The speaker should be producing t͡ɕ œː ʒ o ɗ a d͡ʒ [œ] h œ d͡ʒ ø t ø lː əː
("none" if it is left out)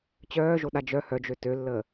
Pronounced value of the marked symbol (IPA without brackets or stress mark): œ